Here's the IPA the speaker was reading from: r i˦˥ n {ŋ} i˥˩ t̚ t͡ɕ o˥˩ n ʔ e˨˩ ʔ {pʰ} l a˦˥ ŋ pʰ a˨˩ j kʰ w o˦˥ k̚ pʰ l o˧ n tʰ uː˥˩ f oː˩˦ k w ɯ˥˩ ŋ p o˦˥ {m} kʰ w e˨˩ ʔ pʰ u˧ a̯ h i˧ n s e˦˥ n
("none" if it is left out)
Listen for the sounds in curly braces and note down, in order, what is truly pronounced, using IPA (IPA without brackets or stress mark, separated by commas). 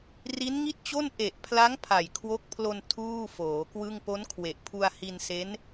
ŋ, pʰ, n